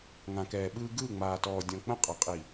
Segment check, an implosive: present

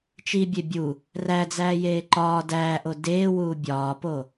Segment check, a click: present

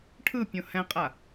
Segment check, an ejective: present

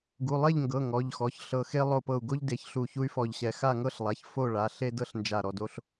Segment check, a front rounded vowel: present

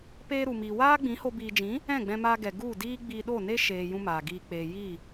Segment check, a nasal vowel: present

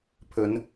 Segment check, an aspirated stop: present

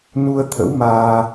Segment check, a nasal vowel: absent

